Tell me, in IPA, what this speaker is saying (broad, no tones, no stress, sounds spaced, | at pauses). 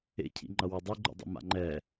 ḛ cʰ ḭ ŋ͡ǃ ʌ w ʌ dˤ i ɡ͡ǃ o̰ dˤ ḭ m a̰ ŋ͡ǃ ɛ